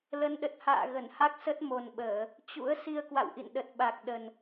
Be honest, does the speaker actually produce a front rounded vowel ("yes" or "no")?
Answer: no